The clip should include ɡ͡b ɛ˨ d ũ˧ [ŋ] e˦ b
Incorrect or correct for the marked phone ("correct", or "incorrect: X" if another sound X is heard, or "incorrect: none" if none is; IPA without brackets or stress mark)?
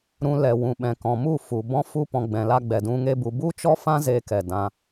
correct